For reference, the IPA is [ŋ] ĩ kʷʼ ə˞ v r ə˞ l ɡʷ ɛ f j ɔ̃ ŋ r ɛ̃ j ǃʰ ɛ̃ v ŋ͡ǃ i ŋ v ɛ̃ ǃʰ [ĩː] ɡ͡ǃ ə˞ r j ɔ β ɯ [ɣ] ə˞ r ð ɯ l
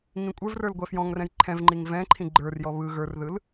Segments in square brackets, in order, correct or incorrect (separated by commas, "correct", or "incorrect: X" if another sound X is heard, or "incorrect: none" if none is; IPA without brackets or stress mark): correct, incorrect: ĩ, correct